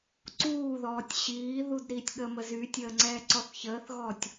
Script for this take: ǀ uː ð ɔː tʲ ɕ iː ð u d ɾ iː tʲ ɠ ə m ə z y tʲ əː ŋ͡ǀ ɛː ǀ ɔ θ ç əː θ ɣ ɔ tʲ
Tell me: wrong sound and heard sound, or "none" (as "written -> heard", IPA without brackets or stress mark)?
none